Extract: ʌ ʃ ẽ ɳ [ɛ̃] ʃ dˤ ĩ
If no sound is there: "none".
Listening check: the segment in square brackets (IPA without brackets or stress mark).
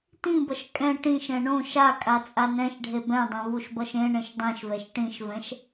ẽ